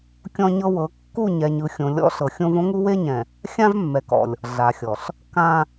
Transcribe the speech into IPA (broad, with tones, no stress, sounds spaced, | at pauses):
kʲ ɔ̃˦ ɲ ɤ˦ w ɤ˨˦ kː u˦˨ ɲ ɛ˨ ɲ ɯ˨ xʲ õ˨ lʲ ɔ̰˦ ɬ ɤ˨ xʲ õ˦ v õ˦ ŋ u˦ w e˦ ɲ ɛ̃˨ | xʲ ã˦ v mː ɛ˨ k ɔ̰˨ lʲ | ɮ a˨ xʲ ɔ˨ ɬ | k ã˦